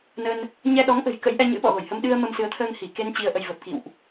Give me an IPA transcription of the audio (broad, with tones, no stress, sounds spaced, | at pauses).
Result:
n ə˧ n | ɲ ɛ˧ ɗ ɔ˨˦ ŋ ʔ ə̤˨˩ j k ə̰˧˥ j ʔ ɛ˧ ɲ ɨ̰˧˥ ɓ ɔ̰˧˨ ɣ o˧˩ j h ə˧ m ɗ ɨ˧ ə̯ m ə˧ m s ɨ˨˦ ə̯ t̪ʰ əː˧ ŋ h i˧˩ k e˧ n t͡ɕ i˧ ə̯ ʔ ə˧ j v ə˨˩ p̚ k ḭ˧˨ w ʔ